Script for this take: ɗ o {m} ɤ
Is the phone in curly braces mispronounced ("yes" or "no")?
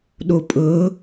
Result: yes